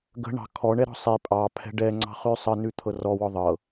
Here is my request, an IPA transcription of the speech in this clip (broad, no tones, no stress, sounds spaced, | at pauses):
ɡ ə̤ ɳ ɑ̤ kʰ ɔ ɳ ɛ ɾ ɔ̤ sˤ i pʼ ɑ pʰ ɛ̤ ɖ ɛ ŋ͡ǀ ɑ̤ χ ʉ sˤ ə n ʉ t̪ʰ ɤ r ɔ w ɔ ðˤ ɤ